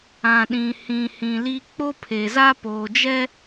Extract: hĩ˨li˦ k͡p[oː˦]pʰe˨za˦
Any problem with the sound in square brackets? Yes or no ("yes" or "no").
yes